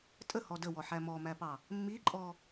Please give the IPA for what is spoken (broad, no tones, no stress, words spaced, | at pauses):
tʼəhɔ dəwɔħæ mɔmæpɑ | mːiǃʼɔ